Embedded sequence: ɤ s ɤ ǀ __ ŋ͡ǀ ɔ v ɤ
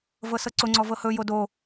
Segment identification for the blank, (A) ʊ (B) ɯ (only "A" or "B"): A